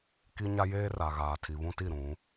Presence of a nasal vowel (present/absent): present